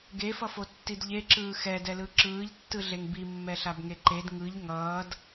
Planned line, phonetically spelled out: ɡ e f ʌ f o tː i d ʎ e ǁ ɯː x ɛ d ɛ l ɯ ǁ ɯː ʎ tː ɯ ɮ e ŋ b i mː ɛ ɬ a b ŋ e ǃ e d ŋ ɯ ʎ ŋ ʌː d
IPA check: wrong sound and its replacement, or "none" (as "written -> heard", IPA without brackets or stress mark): none